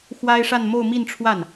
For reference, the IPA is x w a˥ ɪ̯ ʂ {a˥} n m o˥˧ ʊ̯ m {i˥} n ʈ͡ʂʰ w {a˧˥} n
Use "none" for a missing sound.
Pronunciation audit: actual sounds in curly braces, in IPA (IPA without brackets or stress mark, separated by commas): a˥˧, i˥˧, a˥˩